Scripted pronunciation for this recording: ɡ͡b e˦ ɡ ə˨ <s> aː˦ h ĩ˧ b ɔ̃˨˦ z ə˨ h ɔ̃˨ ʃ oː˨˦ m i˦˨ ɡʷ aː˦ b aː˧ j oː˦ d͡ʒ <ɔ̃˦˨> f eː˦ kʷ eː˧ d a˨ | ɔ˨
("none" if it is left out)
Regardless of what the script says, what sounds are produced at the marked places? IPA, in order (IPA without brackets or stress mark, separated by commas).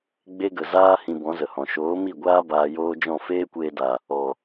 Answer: z, ɔ̃˦˨